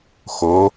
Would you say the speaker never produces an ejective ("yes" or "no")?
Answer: yes